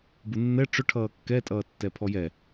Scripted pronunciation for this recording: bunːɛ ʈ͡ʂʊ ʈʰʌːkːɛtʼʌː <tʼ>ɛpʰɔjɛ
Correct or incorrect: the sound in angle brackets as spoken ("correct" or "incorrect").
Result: incorrect